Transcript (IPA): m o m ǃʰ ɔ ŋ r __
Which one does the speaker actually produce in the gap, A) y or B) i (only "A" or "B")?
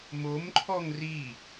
B